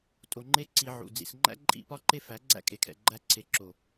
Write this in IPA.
tʼo˨ŋ͡ǃe˦ ǀi˧ʕṵ˨ d͡zḭ˨sŋ͡ǃæ̰˦ ǃʼḭ˦pɒ˦ǃe˦ fæ˨˦ɡ͡ǀæ̰˦ kʼe˨kʰɛ̰˨ ɡ͡ǃæ˧ǀʰe˨ ǁo˨

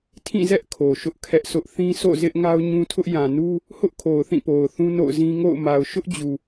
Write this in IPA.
tʰĩ˦˨zɛ˦ʔ kʰo˨ʃʊ˦ʔkʰɛ˦ʔsʰʊ˦ʔ θĩ˦so̰˦˨ zɪ˦ʔŋa˦ʊ̯ɲũ˦tʰʊ˦ʔ jã˨nu˦ | hʊ˦ʔkʰo˨ʊ̯ θĩ˦˨po˨ʊ̯ θũ˦no̰˦˨ʊ̯zĩ˦ŋo̰˦˨ʊ̯ ma˨ʊ̯ʃʊ˦ʔd͡ʑu˨

